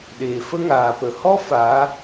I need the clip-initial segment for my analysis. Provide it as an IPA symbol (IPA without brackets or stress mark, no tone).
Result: ɗ